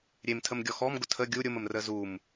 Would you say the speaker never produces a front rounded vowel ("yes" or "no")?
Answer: yes